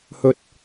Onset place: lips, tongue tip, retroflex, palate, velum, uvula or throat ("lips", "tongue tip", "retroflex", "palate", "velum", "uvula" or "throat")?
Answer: throat